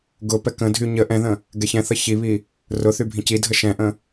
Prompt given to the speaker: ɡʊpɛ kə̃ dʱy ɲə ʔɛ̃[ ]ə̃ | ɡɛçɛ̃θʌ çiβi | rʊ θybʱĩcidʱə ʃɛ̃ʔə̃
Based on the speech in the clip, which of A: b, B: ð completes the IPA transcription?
B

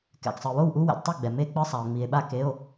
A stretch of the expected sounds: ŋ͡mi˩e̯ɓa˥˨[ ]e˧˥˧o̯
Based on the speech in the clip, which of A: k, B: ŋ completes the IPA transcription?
A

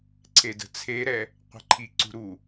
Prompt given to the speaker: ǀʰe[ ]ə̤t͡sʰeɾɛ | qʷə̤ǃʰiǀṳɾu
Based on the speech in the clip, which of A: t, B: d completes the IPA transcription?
B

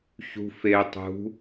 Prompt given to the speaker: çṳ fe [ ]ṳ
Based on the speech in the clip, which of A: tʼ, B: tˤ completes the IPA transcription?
B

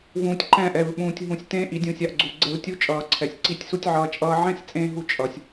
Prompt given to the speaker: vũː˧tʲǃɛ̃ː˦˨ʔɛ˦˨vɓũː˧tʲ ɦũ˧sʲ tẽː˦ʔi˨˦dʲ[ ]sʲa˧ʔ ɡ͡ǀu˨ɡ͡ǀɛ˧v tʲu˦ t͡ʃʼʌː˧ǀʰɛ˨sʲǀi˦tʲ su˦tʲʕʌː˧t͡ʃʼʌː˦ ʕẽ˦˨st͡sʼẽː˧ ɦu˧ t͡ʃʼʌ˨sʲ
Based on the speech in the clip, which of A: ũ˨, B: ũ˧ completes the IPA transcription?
B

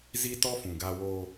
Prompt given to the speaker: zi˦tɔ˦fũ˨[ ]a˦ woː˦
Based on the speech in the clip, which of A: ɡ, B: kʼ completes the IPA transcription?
A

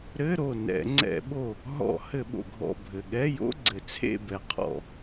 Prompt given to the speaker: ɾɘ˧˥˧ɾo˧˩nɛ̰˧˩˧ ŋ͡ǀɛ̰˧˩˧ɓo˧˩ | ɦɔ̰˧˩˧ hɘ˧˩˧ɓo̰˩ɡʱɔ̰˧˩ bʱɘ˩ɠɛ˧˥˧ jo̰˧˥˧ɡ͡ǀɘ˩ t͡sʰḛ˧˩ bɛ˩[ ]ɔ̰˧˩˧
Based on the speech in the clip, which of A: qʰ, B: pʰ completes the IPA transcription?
A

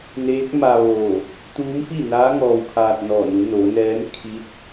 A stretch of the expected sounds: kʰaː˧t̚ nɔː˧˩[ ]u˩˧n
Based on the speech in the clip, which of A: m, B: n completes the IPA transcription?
B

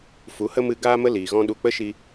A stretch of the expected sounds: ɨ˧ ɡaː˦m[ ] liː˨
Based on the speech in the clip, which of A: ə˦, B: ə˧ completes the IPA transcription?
A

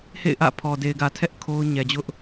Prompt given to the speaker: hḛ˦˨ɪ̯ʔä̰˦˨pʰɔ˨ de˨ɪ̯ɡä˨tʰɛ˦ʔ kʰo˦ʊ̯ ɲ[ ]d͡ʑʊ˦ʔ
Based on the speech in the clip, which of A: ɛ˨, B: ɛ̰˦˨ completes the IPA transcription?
A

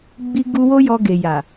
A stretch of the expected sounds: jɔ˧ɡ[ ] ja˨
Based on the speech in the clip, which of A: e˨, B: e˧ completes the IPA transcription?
A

